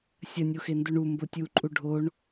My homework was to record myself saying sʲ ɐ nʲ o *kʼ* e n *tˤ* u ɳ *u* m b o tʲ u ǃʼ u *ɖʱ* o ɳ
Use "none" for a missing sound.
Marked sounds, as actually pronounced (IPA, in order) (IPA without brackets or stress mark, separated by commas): x, d, u, ɖʱ